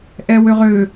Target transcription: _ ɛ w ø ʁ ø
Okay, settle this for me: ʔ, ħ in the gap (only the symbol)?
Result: ʔ